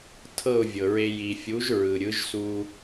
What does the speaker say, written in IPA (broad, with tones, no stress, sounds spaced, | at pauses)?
tʰ ɤ˥˩ ʊ̯ vʲ ɤ˩ ɹ e˧ j i˩ fʲ u˩˥ ʒ ɹ ɯ˩ ɾʲ ɯ˩˥ ʒ s u˧